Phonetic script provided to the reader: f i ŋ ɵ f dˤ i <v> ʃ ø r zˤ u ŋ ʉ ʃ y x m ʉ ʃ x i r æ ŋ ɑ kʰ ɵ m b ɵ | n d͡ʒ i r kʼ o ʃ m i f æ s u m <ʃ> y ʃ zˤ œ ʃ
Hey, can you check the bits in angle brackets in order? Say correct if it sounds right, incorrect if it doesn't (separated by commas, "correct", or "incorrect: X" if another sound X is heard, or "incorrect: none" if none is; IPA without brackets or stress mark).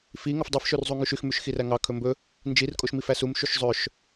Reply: incorrect: f, correct